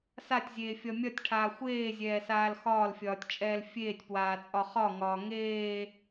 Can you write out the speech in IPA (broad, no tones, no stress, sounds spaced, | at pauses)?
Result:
s a tʲ zʲ eː fʲ ɒ mʲ ɒ tʲ ʈʰ aː xʷ eː zʲ ɛː s aː l x ɒː l fʲ ɒː tʲ t͡ʃʼ ɛː l fʲ eː tʲ p w aː t͡sʼ ɒ χ ɒ ŋ ɒː ŋ eː